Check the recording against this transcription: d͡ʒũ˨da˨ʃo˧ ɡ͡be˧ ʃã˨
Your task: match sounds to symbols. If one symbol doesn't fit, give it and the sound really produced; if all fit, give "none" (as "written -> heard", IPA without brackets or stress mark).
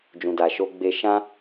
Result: ã˨ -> ã˦